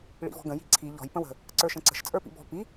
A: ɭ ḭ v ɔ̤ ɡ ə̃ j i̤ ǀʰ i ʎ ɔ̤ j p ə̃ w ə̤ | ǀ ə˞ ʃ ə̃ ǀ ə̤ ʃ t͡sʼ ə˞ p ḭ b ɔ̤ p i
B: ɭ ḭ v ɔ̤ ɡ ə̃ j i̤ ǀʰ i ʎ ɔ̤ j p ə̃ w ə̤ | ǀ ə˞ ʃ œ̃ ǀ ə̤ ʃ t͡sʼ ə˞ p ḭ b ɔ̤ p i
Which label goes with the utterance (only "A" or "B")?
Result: A